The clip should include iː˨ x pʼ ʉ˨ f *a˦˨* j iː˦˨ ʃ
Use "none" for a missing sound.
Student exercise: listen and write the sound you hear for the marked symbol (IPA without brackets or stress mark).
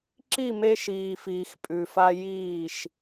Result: a˧